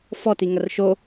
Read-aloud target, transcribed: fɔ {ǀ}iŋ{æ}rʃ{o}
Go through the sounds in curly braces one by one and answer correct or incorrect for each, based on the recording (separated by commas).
incorrect, incorrect, correct